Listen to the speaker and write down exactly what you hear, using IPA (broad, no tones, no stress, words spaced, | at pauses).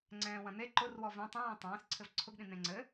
ŋ͡ǀɛ̃ːwɐ̃n̪e ǃʊrwɔ vẽ tˤĩ wĩtˤɛ̃ːsǀʰɘv ǀʰʊɡɗĩ n̪ẽŋ͡ǀɘ